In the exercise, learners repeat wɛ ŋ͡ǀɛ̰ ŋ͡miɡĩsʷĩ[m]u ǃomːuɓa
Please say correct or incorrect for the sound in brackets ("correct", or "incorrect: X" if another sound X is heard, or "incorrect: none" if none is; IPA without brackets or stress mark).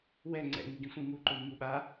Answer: correct